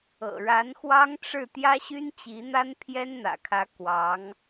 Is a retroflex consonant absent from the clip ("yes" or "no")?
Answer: no